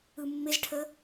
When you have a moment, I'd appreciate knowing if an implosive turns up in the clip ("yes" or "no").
no